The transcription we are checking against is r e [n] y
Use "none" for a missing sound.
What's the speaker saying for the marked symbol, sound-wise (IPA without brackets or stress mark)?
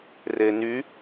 n